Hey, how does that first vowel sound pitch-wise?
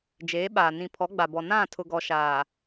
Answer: rising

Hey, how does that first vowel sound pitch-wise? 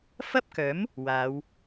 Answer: high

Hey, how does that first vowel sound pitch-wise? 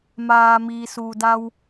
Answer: low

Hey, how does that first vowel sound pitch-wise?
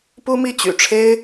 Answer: high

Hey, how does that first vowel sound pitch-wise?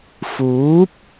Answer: rising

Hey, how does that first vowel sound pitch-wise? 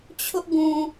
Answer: high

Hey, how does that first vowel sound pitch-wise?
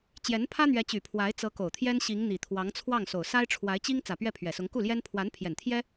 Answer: rising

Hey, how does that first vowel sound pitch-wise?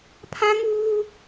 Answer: high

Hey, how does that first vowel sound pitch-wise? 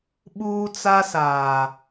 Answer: high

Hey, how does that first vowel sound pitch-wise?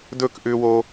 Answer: falling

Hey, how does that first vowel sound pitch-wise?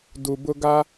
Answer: low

